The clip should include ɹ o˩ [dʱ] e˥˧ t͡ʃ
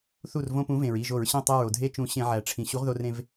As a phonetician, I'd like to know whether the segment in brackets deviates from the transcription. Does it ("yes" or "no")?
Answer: no